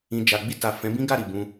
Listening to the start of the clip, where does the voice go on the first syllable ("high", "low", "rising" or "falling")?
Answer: low